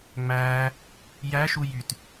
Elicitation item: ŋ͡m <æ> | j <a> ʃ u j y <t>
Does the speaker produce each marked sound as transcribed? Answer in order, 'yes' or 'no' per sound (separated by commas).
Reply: no, no, yes